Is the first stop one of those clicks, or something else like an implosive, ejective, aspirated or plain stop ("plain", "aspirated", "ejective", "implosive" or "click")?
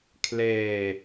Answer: aspirated